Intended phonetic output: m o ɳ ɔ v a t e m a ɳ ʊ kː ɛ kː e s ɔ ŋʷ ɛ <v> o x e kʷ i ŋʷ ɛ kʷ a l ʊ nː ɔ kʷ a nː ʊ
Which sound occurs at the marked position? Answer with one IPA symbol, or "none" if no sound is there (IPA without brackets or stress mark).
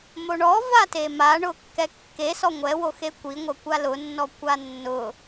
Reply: w